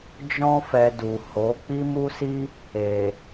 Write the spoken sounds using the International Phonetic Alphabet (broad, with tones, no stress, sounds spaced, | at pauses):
d͡ʒ ɔ̃˧ f ɛ˨ d u˨ h o˨˦ k͡p i˦ m u˦ s i˦ | e˨